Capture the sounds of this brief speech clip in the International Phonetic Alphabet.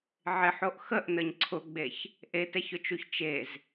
ʕ ɪ ħ o ʔ x ə ʔ n ə ɲ ǀʰ ʊ ɡ͡b e ç | ʔ e t ɛ ç ʊ t͡ʃ u ç t͡ʃ e z

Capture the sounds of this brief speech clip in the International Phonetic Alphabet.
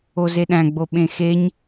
o z e ɗ æ̃ ɡ͡b o ɓ ẽ x e ɲ

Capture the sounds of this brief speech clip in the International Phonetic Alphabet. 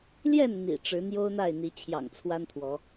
l j ɛ˥˨ n n̪ ḭ˨˩ ʈ͡ʂ ɻ̩˨˦ n̪ j o˦ ʊ̯ n̪ a˥˨ ɪ̯ n̪ i˨˦ t͡ɕʰ j ɑ̰˨˩ ŋ t͡sʰ w a˦ n t̪ʰ w ɔ˨˦

